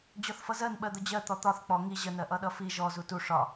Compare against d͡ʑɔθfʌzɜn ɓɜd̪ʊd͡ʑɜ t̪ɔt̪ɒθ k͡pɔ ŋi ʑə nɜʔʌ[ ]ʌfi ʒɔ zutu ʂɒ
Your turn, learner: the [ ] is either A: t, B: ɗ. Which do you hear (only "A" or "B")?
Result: B